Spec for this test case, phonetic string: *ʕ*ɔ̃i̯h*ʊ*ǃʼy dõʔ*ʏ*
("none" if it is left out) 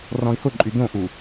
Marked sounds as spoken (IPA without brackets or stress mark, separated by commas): r, ʊ, u